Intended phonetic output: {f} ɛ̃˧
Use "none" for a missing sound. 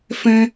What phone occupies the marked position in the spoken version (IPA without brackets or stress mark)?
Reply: f